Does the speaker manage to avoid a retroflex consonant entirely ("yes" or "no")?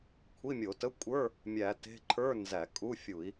yes